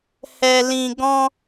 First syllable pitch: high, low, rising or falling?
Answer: low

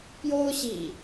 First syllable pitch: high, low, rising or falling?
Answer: high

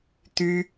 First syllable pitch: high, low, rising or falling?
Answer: high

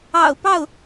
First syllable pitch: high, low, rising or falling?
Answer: low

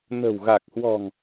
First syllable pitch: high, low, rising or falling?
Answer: low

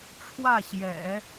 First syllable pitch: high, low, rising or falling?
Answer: falling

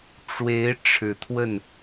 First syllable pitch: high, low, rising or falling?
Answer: rising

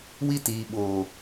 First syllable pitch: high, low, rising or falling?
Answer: high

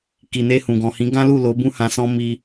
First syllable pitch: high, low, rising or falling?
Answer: low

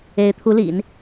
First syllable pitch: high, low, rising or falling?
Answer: rising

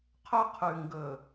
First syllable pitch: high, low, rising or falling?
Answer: high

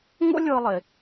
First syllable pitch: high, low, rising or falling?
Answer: high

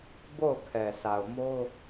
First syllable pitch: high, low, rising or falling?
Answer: falling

